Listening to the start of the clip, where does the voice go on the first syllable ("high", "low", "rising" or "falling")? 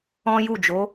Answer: high